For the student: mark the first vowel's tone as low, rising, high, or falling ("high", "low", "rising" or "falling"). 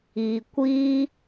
low